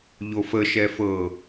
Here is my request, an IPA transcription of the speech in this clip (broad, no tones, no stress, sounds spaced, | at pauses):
ʎ o f ə ʃ ɛ f ɤ